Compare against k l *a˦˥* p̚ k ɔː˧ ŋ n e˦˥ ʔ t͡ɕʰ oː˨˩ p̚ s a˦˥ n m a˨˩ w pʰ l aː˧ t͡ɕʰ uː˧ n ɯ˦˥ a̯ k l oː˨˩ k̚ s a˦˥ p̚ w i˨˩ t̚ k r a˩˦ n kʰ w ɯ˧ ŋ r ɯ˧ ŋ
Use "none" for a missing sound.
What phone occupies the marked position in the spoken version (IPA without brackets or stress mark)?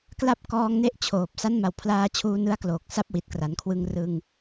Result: a˦˥